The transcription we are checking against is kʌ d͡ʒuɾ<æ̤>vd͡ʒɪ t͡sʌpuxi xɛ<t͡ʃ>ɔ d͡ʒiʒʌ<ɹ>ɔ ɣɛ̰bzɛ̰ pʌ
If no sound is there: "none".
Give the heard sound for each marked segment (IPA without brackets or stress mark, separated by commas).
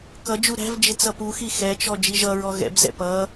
æ̤, t͡ʃ, ɹ